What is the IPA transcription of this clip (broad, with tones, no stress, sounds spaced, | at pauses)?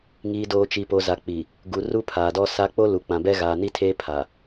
ŋ iː˨ d oː˨ t͡ʃ i˨ p o˨ z a˨ k͡p i˨ | ɡ u˨ r u˦ pʰ aː˨ d ɔ˦ s a˦ k͡p o˦ l u˨ k͡p ã˨ b ɛ˦ ɣ aː˨ n i˦ tʰ eː˦ pʰ a˨